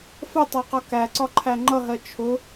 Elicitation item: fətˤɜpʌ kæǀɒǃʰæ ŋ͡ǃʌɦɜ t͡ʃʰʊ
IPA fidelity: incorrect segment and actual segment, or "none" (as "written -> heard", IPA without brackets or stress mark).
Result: p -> q